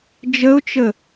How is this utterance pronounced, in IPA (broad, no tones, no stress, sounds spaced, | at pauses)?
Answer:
d͡ʒ ə ʊ̯ t͡ʃ ə